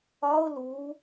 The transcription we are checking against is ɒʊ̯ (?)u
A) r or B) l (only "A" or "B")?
B